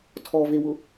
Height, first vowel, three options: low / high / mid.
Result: mid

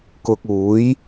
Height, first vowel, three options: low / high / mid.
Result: high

